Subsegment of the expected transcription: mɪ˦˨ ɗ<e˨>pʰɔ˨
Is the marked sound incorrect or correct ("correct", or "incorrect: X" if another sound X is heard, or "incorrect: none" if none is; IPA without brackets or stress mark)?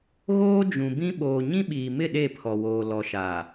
incorrect: e˦˨